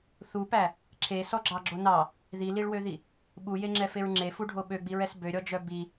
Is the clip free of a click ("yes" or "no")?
no